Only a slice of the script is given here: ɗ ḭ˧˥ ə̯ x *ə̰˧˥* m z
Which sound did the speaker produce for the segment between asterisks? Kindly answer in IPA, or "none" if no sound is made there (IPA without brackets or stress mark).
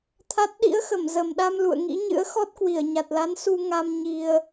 ə˧˩